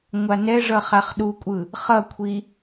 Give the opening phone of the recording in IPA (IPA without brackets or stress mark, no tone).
ŋʷ